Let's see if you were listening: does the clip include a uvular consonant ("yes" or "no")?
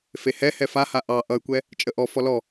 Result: no